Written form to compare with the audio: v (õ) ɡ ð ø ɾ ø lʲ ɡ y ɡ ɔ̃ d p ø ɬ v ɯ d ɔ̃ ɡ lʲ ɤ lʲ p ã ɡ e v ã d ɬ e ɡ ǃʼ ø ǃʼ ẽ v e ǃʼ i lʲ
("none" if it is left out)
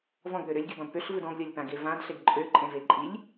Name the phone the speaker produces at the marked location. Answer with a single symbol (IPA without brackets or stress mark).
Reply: ɔ̃